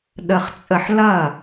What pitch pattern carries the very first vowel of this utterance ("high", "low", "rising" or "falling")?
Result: low